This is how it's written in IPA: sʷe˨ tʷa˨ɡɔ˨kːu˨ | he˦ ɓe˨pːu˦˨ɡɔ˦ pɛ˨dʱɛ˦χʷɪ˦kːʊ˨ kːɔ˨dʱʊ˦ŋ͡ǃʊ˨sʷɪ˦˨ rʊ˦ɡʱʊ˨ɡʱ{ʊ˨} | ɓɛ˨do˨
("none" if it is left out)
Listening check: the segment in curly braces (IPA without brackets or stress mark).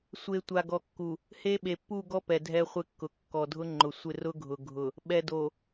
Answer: ʊ˨